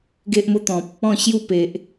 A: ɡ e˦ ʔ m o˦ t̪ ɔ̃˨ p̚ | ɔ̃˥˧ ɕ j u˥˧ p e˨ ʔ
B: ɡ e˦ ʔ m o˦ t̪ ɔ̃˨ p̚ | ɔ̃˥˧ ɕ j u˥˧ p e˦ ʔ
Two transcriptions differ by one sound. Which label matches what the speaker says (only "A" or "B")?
A